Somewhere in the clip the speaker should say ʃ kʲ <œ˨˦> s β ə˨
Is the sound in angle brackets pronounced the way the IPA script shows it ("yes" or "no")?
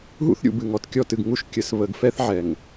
no